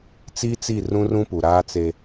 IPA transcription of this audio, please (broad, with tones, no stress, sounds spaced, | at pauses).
t͡s iː˦ t͡s i˦˨ r ũ˦ r ũ˦ p u˨ ɾ aː˦ t͡s e˦